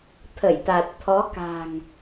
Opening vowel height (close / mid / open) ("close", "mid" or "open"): mid